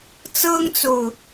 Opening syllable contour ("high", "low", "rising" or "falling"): high